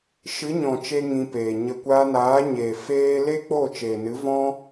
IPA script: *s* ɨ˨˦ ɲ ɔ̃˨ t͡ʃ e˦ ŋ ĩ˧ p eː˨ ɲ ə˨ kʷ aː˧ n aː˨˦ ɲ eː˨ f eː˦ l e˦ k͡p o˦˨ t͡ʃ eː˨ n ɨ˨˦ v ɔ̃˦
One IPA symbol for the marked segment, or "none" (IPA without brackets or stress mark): ʃ